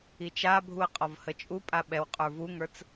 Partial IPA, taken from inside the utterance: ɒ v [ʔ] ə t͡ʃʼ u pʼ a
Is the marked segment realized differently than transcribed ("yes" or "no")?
yes